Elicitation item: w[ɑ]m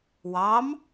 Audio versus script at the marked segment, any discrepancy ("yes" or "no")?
no